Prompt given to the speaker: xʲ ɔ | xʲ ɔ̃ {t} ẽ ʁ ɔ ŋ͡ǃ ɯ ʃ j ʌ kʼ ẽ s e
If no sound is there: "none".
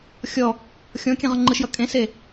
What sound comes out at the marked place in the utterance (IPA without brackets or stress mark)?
kʲ